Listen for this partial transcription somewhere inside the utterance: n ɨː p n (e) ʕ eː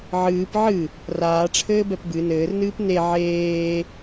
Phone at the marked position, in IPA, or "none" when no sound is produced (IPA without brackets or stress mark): e